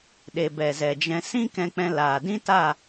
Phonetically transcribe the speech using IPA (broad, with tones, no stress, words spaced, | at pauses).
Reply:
ɗe˨bɛ˨ zɛ˨d͡ʒɛ̃˧ sĩ˦kɛ̃˧k͡pɛ̃˧ laː˨dĩ˦ta˦˨